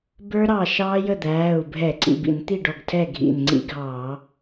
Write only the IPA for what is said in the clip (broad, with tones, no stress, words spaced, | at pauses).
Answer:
bə˞˦˥ɾɑ˧˩ ʃɑː˦˥jə˥˨d̪æː˩˧˩u̯ bʱɛ˧˩˧ǀḭ˧˩bḭ˧˩˧nt̪i˥˨ ɖɔ˧˩ɡtʰɛ˥˨ ɡʱḭ˧˩nŋ͡ǀḭ˦˥ɡʱɑː˧˩˧